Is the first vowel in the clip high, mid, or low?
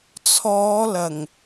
mid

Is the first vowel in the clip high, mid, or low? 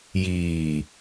high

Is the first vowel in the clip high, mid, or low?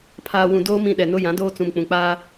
low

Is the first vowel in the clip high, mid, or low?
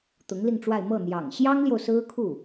high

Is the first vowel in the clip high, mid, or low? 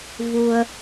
high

